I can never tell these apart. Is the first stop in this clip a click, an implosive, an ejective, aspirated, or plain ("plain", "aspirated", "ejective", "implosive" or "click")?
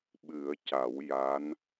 implosive